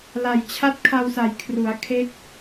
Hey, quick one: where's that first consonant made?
tongue tip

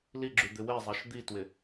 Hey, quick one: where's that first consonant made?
tongue tip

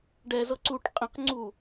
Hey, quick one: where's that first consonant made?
retroflex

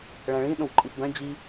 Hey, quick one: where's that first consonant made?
retroflex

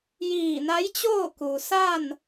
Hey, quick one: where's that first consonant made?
palate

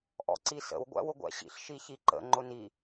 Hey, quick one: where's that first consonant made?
throat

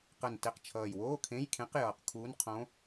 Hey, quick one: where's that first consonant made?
uvula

